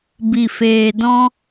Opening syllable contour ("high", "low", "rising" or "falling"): low